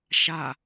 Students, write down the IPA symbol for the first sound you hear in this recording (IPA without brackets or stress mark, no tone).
ʃ